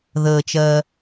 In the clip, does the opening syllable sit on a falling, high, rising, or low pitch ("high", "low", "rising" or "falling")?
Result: low